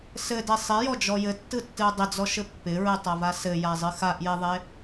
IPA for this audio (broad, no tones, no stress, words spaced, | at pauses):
sɘde sˤɪjɔd͡ʒɔ jɘtːɯtːɨu̯ dˤɪd͡zɔʃɘ pːɪɹɨtˤava sɘjazˤɨ xaʔjeðˤe